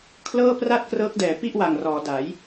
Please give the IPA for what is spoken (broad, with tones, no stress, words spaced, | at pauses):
kʰlɤː˥˩pra˥˩t̚ krɤː˦˥k̚dɛː˩˦pi˥˩ʔwa˨˩ŋ rɔː˩˦da˩˦j